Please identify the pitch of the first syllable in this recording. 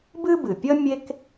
high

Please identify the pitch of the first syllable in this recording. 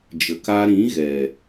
low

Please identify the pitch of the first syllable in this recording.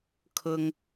high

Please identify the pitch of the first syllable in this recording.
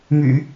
low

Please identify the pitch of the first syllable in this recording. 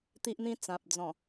high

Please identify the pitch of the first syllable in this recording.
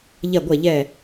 falling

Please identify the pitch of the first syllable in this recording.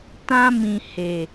high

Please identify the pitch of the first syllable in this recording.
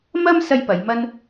high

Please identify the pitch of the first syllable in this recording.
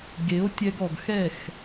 rising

